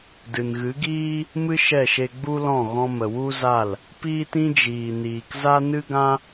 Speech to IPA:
d ɨ˨ n ɣ ɨ˨˦ ɡ iː˦ | m ɨ˦ ʃ ɛ˦˨ ʃ e˧ ɡ͡b u˦ l ɔ̃˦˨ ɣ ɔ̃˧ m ə˨ w u˦ z a˦˨ l | p iː˦ t ĩ˦ d͡ʒ iː˨ n iː˨ k z a˦ n ɨ˦ ɡ ã˦

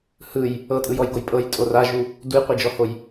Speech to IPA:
h ɯ j | ɤ tʼ ɯ j ɔ j ɡ o j pʼ ɤ j tʼ o r a ʒ u | d u j qʷ e d͡ʒ ɔ h o j

